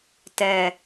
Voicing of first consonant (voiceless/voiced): voiceless